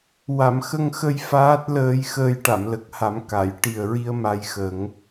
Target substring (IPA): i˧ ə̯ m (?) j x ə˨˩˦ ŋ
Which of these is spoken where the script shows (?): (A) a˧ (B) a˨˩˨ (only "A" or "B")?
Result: A